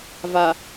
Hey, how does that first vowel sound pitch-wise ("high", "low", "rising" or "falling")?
low